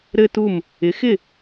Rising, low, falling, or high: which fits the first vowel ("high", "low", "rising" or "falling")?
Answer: high